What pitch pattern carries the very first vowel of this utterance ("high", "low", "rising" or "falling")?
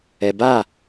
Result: low